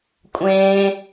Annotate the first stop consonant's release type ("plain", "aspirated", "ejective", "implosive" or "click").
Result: ejective